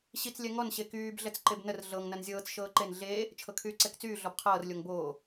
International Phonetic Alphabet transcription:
ɕit͡slʲɛ ŋɔnɕe kyːbɮɛt͡s ǃebnər ɮɤŋ nɐnzʲɤːt͡s ʃɤːǃen ɮeː | t͡ʃʰɤkʰyːǀɛkt͡syː ɮɔbqʰɤːrlʲoŋ boː

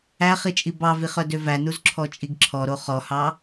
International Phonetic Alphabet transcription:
æχit͡ʃʼi bɑviχœdø vænuzǁʰɔt͡ʃʼiɡ ǁʰɔɾo χɔhɑ

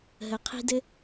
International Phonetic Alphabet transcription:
ɦə˩ qʰi̤˧dɘ˧

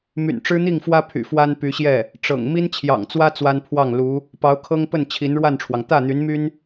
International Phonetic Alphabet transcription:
my̰˨˩nʈ͡ʂɻ̩˥n̪i˥˩ŋfwä˥ pʰy̰˨˩ fwa˥npy˧˥ɕjɛ˥˩ | ʈ͡ʂɤ̰˨˩ŋ mi˥nt͡ɕʰjɑ̰˨˩ŋt͡swä˥ t͡swa˥npʰwɑ˥˩ŋ lu˧˥ | pɑ˧˥ʊ̯kʰɤ˥ŋpə˥˩n t͡ɕʰi˧˥nɻwa˥˩nʈ͡ʂʰwɑ˩ŋ t̪ä˥˩n̪y˧˥nmy˥n

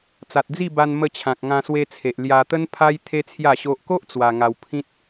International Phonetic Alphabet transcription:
t͡sa˨t̚d͡zi˥˧ba˧n mə˧t͡ɕʰã˨k̚ ŋã˧swe˧t͡sʰe˨ʔ lja˧t̪ə˦npʰa˦j t̪ʰe˦t͡sʰja˥˧ɕo˦ʔ ko˦ʔ t͡swa˧ŋa˧wpʰĩ˦t̚

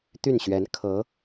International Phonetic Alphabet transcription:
t̪y˥˩nɕɥɛ˧˥n kʰɤ˧˥

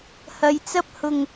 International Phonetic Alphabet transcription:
hɐ˨˧jt͡sɐ˥p̚hʊ˧ŋ

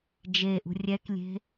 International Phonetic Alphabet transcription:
d͡ʒeʔṳ rʲɛklʲe̤

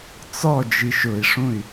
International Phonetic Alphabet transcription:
t͡sɔ d͡ʒiʃʊi̯ʂũy̯

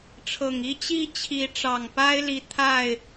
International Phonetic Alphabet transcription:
ʈ͡ʂʰɤ˨˩ŋ i˦t͡ɕi˦t͡ɕʰi˨˦ ʈ͡ʂɑ˨˩ŋpa˦ɪ̯li˨˦ t̪ʰa˥˨ɪ̯

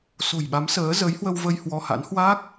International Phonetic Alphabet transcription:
so̤˨˩jɓa˨˦m səː˨˦ zəː˨˦jhwə˧wvə˧j hwɔ˧ha̰˧˥n hwa˦˥k̚

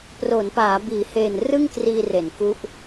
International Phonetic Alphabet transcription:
pro˩˦npaː˩˦ biː˩˦heː˨˩n rɯ˥˩ŋkriː˧re˩˦n ku˦˥ʔ

